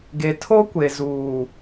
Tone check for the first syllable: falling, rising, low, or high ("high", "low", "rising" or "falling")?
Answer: low